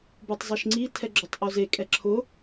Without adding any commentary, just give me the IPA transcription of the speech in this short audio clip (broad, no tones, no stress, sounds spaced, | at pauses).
b u tˤ zˤ i ʃ ŋ͡ǀ i tʰ ɛ ɡ͡ǁ o tˤ ʔ o z e kʼ ɛ ǁʰ ʊ